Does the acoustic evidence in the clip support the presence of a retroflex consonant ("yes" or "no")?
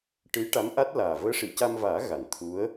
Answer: yes